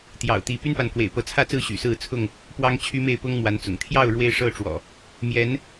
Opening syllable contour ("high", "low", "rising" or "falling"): low